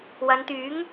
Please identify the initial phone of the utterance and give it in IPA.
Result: w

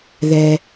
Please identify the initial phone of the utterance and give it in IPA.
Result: ð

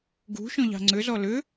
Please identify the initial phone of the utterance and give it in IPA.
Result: ɡ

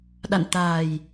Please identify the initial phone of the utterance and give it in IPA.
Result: ɗ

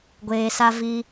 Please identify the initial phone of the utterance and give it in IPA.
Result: ɡʷ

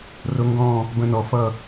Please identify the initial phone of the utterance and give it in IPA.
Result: r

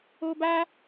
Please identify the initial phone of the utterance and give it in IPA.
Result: o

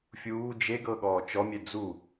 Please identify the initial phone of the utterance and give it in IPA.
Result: fʲ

